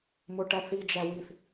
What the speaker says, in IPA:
m ʊ ʈ æ θ i d͡ʒ æ w i θ

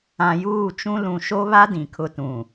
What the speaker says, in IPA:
ã˨ j uː˦˨ t͡ʃ ũ˦ l ũ˨ ʃ o˦ β a˦ d ĩ˨ kʰ ʊ˦ t ũ˨

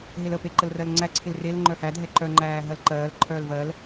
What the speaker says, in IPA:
ɦ e l ə p e ǃ ə l r ɜ l ŋ͡ǀ æ ǀʰ ɪ l r e l ŋ͡ǃ œ h æ dʱ ɛ ǃ œ ŋ͡ǃ æː ɦ ɜ l ǃ ɜː l ǃʰ œː l v ɜ l

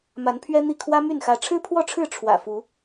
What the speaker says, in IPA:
m a˨˦ n pʰ ɥ ɛ˦ n̪ i˥˨ kʰ w ä˦ m y˥˨ n x ä˨˦ ʈ͡ʂʰ ɻ̩˦ pʰ w ɔ˥˨ ʈ͡ʂʰ ɻ̩˥˨ ʈ͡ʂʰ w ä̰˨˩ f u˨˦

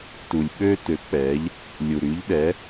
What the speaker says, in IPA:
t u˩ lʲ ɓ ø˧ t ø˩˧ k͡p ɛ˩˧ ʎ | lʲ u˩ ɾ y˩˧ ʎ ɗ ɛ˩˧

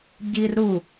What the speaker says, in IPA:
ɟ i r ɾ u

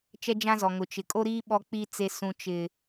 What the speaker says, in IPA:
t͡ʃ ɛ˦ d͡ʒ ã˦ z ɔ˨ ŋ ʊ˨ t͡ʃ ɪ˨ kʼ o˦ ɾ iː˦ ɓ ɔ˦ k͡p iː˦ t͡s e˨ s ũ˨ t͡ʃ ɪ˨

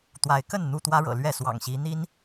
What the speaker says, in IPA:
t̪ w a˨˦ ɪ̯ k ə˥˨ n n̪ u˥˨ t̪ w ä˦ ɻ ɤ̰˨˩ l ɥ ɛ˥˨ s w ɑ̰˨˩ ŋ ɕ i˨˦ n̪ i˦ n

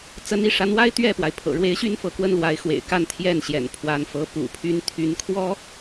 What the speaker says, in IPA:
t͡s ə˧˥ n i˥˩ ʂ a˧˥ n w a˥ ɪ̯ t̪ ɥ ɛ˥˩ p w a˩ ɪ̯ pʰ ɤ̰˨˩ ɻ w e˧˥ ɪ̯ ɕ y˥˧ n f ɤ˥˩ k w ə˥ n l w a˧˥ ɪ̯ x w ḛ˨˩ ɪ̯ k a˥˧ n t̪ʰ j ɛ˥˩ n ɕ j ɛ̰˨˩ n pʰ w a˧˥ n f ɤ˧˥ p ṵ˨˩ pʰ y˥ n t̪ʰ y˧˥ n kʰ w ɔ˥

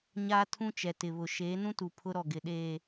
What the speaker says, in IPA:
ɲ aː˦ tʰ ũ˦ t͡ʃ ɛ˨ t ɪ˨ β ʊ˨ ʃ eː˨˦ n ũ˦ t u˨ pʰ ʊ˦ ɾ ɔ˨ ɡ ɪ˨ ɗ eː˨

